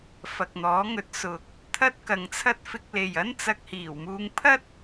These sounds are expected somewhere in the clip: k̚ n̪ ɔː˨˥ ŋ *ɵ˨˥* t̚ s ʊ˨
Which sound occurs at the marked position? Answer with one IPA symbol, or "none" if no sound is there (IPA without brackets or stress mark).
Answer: ɵ˨˥